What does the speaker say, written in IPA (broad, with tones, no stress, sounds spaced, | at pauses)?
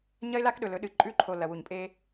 ɲ ɐ˦ ɪ̯ l a˦ k ɗ ɵ˨ l ɵ˨˦ ɗ ɨ˨ ǃʼ ʉ˦˨ ǃʰ o˨ l ɐ˨ w u˨ ɲ pʼ e˦